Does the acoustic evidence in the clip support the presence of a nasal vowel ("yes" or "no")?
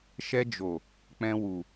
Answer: yes